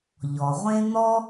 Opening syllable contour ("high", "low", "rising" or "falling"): low